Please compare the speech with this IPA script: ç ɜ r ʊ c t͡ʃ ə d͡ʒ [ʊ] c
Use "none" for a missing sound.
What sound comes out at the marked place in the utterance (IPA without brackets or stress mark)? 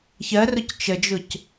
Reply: ʊ